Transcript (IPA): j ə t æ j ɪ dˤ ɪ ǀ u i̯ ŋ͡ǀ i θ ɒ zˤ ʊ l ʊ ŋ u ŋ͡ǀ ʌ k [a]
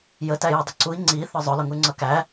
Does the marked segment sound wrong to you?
yes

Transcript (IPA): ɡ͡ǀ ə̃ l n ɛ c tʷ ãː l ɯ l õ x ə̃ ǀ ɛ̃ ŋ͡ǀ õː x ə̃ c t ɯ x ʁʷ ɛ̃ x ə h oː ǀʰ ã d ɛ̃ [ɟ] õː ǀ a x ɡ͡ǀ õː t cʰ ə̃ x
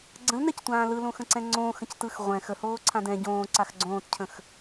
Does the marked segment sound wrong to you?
no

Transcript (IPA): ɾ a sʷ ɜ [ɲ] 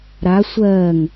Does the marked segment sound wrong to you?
yes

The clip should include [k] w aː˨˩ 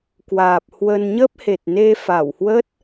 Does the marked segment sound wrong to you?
no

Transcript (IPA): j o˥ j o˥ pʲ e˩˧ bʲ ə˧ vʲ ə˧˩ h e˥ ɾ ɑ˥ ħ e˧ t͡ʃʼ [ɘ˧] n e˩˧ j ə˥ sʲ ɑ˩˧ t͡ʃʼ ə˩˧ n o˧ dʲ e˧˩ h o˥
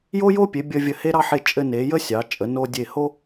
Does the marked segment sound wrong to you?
no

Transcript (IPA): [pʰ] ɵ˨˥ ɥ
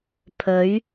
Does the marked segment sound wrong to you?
no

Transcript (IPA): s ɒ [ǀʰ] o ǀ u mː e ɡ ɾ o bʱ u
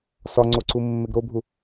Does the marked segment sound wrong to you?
yes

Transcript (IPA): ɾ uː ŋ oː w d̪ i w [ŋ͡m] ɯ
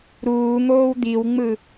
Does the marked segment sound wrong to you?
no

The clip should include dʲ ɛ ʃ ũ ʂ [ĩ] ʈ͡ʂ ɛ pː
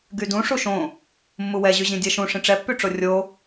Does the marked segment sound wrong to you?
no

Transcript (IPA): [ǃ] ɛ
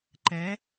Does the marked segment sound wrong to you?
no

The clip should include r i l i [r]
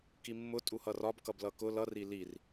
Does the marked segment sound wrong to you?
no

